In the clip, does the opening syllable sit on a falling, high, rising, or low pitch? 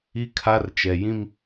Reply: high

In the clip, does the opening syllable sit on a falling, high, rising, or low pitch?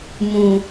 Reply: low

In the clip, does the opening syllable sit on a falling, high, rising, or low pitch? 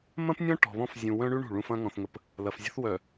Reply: high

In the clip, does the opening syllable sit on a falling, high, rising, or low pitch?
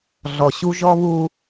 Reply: low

